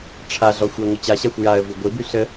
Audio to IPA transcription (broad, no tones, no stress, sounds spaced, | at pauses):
ʈ͡ʂʰ a ɮ ɔ xʷ ɛ ŋʷ ə t͡ɕ a ɕ a xʷ j a ə̯ v i ɡʷ i b y ɬ ə